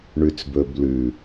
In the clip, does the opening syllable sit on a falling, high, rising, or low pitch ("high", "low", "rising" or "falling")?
low